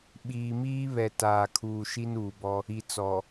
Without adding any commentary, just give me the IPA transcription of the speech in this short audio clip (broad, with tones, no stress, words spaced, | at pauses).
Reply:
ɓiː˨miː˦ βɛ˨taː˨kʰuː˨ ʃi˦nuː˨bɔ˦ | i˨t͡sɔ˨